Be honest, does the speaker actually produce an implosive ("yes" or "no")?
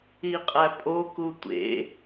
no